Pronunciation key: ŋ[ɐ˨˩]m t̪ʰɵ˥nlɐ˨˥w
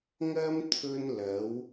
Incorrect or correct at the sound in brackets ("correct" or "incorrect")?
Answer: incorrect